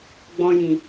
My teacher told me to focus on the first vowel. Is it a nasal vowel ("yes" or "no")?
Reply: yes